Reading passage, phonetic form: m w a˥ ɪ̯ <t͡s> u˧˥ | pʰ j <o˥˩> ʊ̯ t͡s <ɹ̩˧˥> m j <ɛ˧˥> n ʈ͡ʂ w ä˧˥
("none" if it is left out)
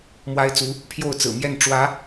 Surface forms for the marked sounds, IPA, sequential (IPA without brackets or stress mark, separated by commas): t͡s, o˥˩, ɹ̩˨˩, ɛ˥˩